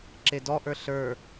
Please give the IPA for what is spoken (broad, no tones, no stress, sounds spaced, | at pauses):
ǁ e d ɔ ʔ ə˞ ɬ ə˞